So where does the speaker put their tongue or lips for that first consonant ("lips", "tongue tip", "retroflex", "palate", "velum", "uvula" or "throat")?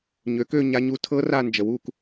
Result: palate